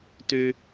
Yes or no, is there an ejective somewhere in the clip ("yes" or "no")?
no